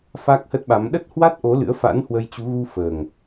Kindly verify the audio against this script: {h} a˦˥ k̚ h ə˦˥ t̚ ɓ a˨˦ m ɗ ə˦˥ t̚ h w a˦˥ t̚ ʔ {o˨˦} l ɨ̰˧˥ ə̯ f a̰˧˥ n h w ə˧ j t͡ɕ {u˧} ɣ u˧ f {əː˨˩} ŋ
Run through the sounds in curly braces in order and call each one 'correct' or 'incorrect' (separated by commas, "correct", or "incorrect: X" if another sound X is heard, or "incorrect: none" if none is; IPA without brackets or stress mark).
incorrect: f, correct, incorrect: u˨˦, correct